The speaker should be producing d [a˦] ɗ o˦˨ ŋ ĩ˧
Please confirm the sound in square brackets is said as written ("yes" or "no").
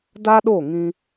yes